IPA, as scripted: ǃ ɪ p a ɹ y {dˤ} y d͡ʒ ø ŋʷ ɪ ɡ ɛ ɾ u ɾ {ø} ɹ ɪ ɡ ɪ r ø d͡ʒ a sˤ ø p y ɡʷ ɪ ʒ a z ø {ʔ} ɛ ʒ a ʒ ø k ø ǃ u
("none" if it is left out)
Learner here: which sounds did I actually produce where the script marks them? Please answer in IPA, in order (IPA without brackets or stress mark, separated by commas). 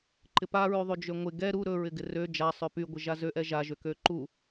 ðˤ, ɵ, ʔ